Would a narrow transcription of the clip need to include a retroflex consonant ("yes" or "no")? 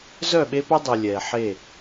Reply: no